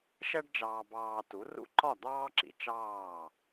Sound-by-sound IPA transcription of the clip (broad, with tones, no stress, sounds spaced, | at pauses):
ʃ ɛ˥ ɖ d͡ʒ ɑː˧ b ɑː˧ t u˩˥ r ṵ˥˩ ǃ ɒ˥˩ d̪ ɑː˥ ǁ ḭ˧ t͡ʃ ɑː˥˩